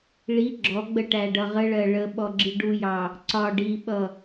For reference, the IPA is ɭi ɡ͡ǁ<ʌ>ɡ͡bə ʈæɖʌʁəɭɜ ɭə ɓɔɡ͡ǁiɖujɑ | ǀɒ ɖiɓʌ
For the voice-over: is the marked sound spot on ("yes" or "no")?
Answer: no